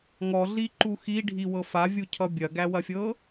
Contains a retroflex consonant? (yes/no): yes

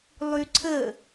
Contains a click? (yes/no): yes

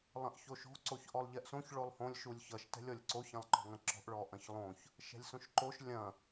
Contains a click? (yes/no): yes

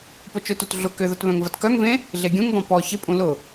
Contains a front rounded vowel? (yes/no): yes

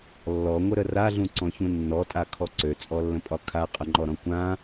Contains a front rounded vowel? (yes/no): yes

